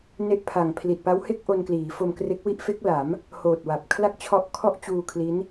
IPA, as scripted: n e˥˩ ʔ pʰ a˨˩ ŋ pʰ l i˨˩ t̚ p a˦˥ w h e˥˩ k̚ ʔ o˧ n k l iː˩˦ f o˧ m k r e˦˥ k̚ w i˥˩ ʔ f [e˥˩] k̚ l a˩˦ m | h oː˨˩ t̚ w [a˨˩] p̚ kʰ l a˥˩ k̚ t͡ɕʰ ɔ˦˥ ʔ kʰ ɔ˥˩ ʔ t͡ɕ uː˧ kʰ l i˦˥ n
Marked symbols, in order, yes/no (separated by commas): no, yes